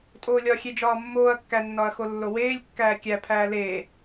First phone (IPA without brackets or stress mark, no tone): tʼ